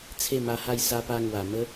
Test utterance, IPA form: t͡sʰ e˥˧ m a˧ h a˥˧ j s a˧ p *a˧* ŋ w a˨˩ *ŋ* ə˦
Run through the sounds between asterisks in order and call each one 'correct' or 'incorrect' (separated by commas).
correct, incorrect